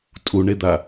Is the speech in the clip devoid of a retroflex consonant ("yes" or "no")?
no